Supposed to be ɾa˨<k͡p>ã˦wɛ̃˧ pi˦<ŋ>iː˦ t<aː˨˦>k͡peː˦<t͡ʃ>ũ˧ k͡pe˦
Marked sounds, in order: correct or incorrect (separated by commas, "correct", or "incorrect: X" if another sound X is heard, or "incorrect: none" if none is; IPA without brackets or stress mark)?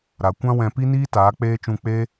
incorrect: kʷ, incorrect: n, correct, correct